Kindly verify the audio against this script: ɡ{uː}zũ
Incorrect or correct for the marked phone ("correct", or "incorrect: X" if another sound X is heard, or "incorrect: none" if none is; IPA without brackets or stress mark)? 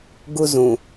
incorrect: u